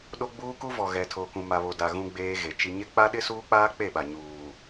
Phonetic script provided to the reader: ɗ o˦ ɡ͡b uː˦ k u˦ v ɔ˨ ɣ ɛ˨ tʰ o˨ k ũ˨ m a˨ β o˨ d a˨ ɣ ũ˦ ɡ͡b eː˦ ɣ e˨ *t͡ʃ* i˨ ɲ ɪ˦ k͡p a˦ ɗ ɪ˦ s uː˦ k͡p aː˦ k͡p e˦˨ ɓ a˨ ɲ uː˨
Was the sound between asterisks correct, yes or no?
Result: yes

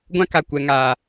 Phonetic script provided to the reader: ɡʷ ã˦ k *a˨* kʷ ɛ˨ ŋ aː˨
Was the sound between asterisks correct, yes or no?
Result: yes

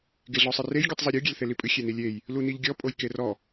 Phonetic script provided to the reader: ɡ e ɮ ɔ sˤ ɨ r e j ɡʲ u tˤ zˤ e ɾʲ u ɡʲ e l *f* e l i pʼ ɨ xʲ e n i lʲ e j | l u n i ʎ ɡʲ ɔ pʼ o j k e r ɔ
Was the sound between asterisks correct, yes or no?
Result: no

